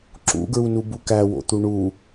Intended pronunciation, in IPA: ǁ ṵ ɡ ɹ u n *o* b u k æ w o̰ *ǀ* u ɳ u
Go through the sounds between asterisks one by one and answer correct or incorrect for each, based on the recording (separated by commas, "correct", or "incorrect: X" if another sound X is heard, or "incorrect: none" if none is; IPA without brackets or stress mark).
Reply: incorrect: u, incorrect: t̪